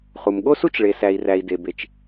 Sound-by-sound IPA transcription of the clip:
χ u˩ m ɠ o˥ s u˥ t͡ʃ ɭ e˩ s æ˩ i̯ r æ˩ i̯ d e˩ b e˩ t͡ʃ

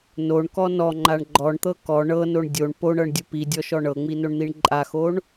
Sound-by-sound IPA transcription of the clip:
n o ɳ k ɔ n ɔ ŋ͡ǃ a ɳ ɡ͡ǃ ɔ ɳ t̪ ɤ k ɔ ɳ ɤ n o ɳ dʲ o ɳ p o ɳ ɤ ɳ dʲ u p i dʲ ɔ ʃ ɔ ɳ ɤ ŋ͡m i n o ɳ n̪ i ɳ ǃʼ a x o ɳ

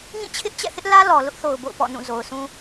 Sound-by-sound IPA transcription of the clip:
ŋ ĩ˦˨ t͡ɕʰ ɪ˦ ʔ t͡ɕ ɛ̰˦˨ θ ɪ˦ ʔ l ä˦ l ɔ˨ l ʊ˦ ʔ θ o˨ ʊ̯ b o̰˦˨ ʊ̯ p ɔ̰˦˨ n ũ˦˨ z o˨ ʊ̯ s ũ˦

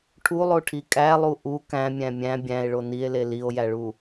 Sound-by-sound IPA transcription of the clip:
ʈʰ u lˠ o ʈʰ i kʼ æ lˠ u ʔ u k æ̃ mʲ æ̃ mʲ æ̃ bʲ æ̃ e̯ ɭ o n i e̯ l e l i o̯ j æ ɭ u

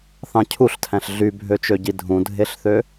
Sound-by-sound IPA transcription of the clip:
θ ɑ̃ cʰ u ɬ tʰ æ̃ ɬ ɮ y bʱ ø t͡ʃ ø ɟ i dʱ ũ dʱ e ɬ θ ø

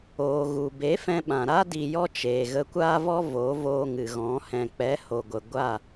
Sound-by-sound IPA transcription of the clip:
oː˧ ɣ u˨ b e˨˦ f ɛ̃˧ ɓ ã˨ ɾ a˦ d i˧ j ɔ˦ t͡ʃ eː˨ ɣ ə˧ kʷ aː˦ v ɔ˦ v o˨˦ v oː˧ ŋ ɨ˨ ɣ ɔ̃˨˦ h ɛ̃˨ k͡p ɛ˨˦ h o˨ ɡʷ ə˨ ɡʷ a˦˨

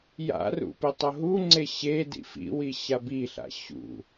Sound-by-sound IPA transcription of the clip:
j a̰ r ṵ p i tˤ o ɦ u ŋ͡ǀ e ɕ e d ḭ f ḭ w i ɕ a b i ɬ a̰ ɕ ṵ

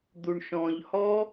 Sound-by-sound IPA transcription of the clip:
d̪ u ɳ ʃ ɔ̃ ʎ h ɔ

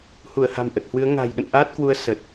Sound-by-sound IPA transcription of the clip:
h u˧˩ ə̯ h a̤˨˩ m ʔ ə˨˩ t̚ h w ɨ˨˦ ə̯ ŋ a̤˨˩ j ɗ ə̰˧˨ n ʔ aː˦˥ t̚ k w u˨˦ ə̯ s ə˨˩ t̚

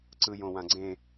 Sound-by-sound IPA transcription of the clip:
ǀ ɯ j õ w ã ɡ͡ǀ ẽ

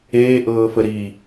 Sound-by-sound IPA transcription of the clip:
eː ʔ ɤː f ə ɾ i

